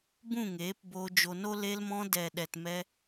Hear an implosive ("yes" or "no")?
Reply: yes